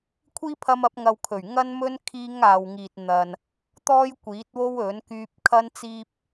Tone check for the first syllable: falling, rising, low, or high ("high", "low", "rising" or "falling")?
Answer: high